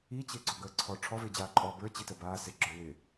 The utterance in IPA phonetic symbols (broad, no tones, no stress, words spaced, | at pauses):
it͡ɕɪːɡ͡ǀɔ ɡəːǀʰɔ ʈ͡ʂʰɔvɪːd͡ʑaː ǃʼɔ bə˞t͡ɕitə baː sɪɡ͡ǁə˞ wɪ